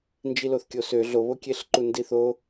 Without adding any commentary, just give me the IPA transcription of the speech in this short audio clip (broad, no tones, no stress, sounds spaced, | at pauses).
n d͡ʒ i l o θ kʲ o s ø ɮ o β o kʲ e ɬ ǃ u n d i θ o